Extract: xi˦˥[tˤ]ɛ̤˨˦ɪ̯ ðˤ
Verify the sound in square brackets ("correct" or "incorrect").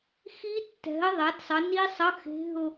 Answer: incorrect